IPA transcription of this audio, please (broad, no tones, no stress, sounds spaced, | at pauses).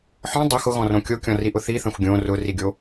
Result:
ħ ɔ̃ dˤ o x ʊ ɣ ɔ̃ r õ kʲ o kʲ ɔ̃ r i ʔ ʊ θ i θ ɐ̃ xʷ ɡʲ õ r ʊ r i ɡʲ o